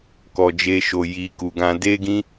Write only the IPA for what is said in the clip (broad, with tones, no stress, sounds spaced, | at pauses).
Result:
k ɔ˨ d͡ʒ e˧ ʃ o˨ j i˨ k u˨ ɡ ã˧ d e˦ ɡ ĩ˦